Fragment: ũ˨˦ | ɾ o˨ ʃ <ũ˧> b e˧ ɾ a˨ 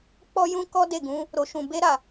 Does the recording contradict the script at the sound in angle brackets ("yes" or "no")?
yes